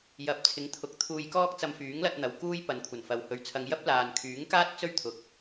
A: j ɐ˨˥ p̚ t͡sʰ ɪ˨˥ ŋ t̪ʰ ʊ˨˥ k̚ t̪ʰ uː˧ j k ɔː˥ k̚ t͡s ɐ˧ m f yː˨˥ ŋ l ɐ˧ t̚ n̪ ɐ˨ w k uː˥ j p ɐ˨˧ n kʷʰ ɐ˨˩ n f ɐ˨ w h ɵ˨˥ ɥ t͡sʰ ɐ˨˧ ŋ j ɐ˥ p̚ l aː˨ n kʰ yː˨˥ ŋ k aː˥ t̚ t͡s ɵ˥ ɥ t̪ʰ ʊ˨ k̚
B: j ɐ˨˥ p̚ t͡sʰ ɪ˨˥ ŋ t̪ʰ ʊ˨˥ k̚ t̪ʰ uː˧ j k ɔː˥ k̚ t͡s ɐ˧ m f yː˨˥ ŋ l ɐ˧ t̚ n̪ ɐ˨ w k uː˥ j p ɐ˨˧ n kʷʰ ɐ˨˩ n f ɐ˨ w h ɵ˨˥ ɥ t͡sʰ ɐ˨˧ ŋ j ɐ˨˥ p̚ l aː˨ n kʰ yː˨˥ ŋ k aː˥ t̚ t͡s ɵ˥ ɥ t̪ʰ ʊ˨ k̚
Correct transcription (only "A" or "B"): A